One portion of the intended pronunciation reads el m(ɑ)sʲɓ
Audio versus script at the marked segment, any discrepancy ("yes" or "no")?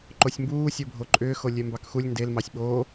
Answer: no